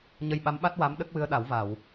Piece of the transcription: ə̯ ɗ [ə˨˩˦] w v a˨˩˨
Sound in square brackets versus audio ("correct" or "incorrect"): incorrect